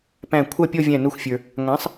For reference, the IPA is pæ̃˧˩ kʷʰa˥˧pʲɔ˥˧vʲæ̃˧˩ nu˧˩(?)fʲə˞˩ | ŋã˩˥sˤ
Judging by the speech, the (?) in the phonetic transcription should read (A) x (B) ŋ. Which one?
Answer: A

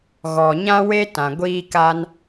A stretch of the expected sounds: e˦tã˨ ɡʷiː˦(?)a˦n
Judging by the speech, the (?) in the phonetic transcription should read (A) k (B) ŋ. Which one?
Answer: A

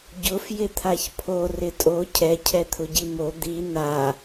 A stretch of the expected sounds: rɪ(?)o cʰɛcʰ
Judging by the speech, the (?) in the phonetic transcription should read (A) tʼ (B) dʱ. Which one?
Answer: A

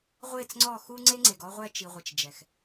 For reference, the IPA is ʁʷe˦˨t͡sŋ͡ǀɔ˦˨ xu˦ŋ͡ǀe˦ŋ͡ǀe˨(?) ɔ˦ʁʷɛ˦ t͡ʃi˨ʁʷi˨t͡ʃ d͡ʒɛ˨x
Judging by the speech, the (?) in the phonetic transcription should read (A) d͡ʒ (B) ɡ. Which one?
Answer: B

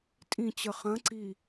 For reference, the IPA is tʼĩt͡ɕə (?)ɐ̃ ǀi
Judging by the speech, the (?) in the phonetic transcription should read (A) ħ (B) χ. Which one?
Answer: B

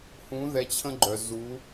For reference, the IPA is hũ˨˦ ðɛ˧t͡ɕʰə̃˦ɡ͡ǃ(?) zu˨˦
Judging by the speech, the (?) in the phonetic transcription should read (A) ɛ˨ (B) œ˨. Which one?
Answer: B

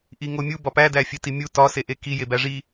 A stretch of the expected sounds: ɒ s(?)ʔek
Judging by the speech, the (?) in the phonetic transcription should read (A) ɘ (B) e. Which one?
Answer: B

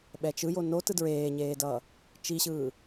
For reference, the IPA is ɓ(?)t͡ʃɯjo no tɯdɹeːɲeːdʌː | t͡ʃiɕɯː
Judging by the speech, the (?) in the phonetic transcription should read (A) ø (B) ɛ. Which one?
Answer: B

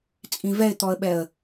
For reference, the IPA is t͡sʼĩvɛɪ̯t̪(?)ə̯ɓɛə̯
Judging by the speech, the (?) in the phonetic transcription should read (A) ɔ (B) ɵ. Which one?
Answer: A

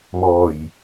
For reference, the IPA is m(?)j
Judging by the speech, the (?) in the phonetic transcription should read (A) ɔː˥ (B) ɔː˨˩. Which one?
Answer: B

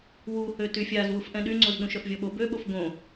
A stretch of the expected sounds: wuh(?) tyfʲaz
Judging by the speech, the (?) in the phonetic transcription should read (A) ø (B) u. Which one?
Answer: A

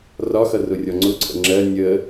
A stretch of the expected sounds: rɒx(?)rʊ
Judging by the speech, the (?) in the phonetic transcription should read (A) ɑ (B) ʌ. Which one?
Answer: B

